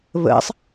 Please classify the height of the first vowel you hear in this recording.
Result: mid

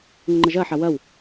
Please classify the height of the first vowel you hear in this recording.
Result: mid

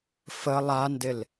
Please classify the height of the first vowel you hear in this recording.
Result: mid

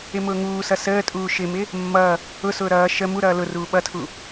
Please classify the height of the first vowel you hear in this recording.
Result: high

